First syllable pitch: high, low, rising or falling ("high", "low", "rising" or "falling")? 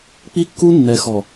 high